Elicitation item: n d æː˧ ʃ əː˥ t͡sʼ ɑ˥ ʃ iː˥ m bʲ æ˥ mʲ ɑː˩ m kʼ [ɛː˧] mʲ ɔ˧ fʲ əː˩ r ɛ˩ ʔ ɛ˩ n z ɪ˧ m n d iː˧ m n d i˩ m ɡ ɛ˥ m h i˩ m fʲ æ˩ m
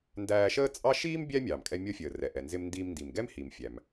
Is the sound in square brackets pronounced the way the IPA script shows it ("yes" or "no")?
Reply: no